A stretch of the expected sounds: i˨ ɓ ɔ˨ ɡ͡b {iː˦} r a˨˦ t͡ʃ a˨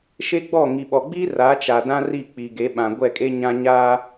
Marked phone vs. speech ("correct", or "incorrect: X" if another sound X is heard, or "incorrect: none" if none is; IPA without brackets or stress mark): correct